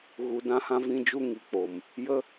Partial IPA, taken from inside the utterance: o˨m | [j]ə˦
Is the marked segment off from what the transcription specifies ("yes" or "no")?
no